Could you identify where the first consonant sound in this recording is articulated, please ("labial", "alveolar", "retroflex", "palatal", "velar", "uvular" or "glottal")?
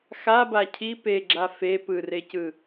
velar